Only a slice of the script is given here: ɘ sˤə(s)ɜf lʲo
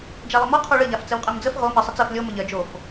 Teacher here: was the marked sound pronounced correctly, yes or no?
no